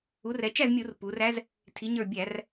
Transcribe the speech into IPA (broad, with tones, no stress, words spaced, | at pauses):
u˩˧rɛ˩˧t͡ʃæ˥˨zmʲu˧˩˧r pu˩˧ræ˥z | tʰi˩˧ɲə˞˧˩bʲæ˧˩˧r